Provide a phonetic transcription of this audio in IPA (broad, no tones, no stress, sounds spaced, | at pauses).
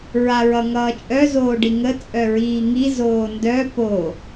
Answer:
ɹ a ɹ ʌ ŋ ʌː t͡ʃʼ œ z oː ɖ i ŋ ə t͡sʼ œ ɹ iː ŋ i z oː n d œ p o